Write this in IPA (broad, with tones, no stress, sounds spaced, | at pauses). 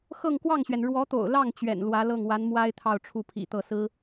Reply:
x ɤ˥˧ ŋ k w ɑ˥˩ ŋ ɕ ɥ ɛ˩ n ɻ w ɔ˧˥ t̪ o̰˨˩ ʊ̯ l ɑ˥˩ ŋ t͡ɕ ɥ ɛ̰˨˩ n l w ä˧˥ l ɤ˥˩ ŋ w a˧˥ n m w a˥ ɪ̯ t̪ʰ ɑ˥˧ ʊ̯ ʈ͡ʂʰ u˥˩ pʰ ḭ˨˩ t̪ ɤ˥˩ s ɹ̩˥